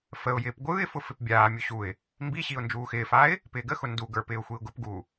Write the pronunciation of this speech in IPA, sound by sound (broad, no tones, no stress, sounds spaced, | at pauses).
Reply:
f ə ʊ̯ j ɪː p ɡʷ ɯː ɪ̯ f ʊ f ɪ p bʲ aː mʲ u ɕ u ɪ̯ | m b i ɕ i ʊ̯ n d͡ʒ uː x ɪː f aː ɪ̯ | p ɪː ɡ ə x ʊ n d u ɡ ə˞ p ɪː ʊ̯ xʷ i ʊ̯ ɡ ʊ p ɡ uː